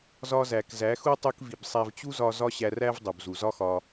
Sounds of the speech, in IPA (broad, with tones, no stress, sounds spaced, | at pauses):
z ɒ˧ z æ˨ k z æ˨˦ x u˦ tˤ u˧ k v i˨ b sˤ æ˧ v t͡ɕ u˦ z ɒ˧ z ɒ˦ ɕ æ˧ r æ˦ v dˤ u˨ b z u˨ z ɒ˦ x ɒ˧